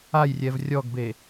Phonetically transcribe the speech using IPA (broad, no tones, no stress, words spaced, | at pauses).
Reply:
ajrʲɛv rʲɔɡbe